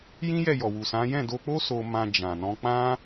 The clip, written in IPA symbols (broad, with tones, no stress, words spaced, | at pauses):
jĩ˦jɛ˦˨jɔ˨wu˨ sã˨˦ jɛ̃˦˨do˧k͡po˦ so˧mã˧ d͡ʒã˨nɔ̃˧k͡pã˦